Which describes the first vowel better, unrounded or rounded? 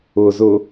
rounded